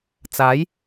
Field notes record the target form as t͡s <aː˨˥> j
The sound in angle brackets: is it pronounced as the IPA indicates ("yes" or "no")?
yes